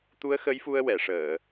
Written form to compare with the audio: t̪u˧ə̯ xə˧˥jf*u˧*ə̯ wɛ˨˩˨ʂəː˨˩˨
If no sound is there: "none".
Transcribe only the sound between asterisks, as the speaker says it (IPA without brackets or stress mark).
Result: u˧